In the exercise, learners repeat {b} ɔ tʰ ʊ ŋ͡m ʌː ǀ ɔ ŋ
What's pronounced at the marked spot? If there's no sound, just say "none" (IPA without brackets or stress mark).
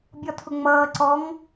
bʲ